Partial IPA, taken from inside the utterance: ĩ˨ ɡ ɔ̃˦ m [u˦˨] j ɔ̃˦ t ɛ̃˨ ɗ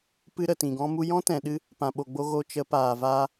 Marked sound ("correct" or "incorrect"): incorrect